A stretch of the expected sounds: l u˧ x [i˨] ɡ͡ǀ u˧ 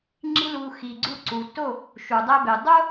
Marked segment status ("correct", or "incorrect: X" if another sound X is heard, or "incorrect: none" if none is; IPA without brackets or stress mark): correct